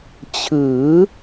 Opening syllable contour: rising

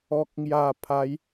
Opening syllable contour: low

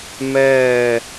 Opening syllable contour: falling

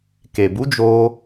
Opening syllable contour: low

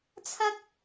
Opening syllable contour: high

